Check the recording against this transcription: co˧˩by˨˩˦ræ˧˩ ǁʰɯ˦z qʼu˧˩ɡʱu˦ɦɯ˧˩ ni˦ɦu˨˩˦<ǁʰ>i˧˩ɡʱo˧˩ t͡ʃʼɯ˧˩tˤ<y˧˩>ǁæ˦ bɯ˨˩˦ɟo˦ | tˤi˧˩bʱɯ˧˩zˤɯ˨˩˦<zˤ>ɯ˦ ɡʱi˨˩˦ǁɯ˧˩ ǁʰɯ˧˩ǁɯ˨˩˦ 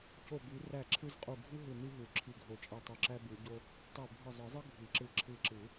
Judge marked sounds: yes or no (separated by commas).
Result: yes, yes, yes